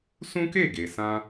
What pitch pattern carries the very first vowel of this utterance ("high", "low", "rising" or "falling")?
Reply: high